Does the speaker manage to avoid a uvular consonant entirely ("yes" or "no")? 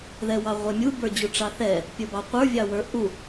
no